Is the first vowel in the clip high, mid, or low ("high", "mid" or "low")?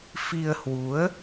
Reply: high